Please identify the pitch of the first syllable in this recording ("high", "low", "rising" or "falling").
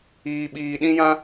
low